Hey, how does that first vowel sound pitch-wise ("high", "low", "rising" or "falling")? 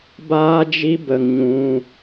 high